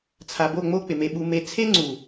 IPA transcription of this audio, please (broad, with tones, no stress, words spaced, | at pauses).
t͡sʰa˨bo˦˨ŋ͡mo˦ k͡pɪ˨me˧ɓu˧me˧ t͡sʰe˦ŋ͡ǀu˨